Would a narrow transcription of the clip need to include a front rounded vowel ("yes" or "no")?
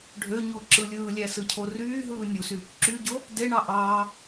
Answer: yes